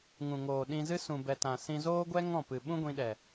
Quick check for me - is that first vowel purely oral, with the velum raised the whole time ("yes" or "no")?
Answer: no